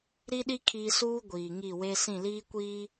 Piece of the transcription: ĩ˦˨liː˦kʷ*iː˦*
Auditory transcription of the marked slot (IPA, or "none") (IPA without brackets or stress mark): iː˦